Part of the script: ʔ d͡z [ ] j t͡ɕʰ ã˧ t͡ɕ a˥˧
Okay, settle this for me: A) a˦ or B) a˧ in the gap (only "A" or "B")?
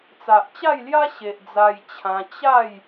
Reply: B